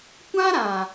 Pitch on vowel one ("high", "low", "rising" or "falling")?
high